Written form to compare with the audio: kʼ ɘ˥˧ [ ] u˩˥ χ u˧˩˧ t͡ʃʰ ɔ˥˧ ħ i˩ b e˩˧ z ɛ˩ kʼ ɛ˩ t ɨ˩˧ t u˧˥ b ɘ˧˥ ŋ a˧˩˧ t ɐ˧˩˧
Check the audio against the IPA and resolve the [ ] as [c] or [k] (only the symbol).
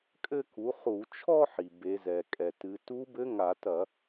k